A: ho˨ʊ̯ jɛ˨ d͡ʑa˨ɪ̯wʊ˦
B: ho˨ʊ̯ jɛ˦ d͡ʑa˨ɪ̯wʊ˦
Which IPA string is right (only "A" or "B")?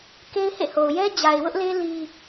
B